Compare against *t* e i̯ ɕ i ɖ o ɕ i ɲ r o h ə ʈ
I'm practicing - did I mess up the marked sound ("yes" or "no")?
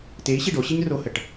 no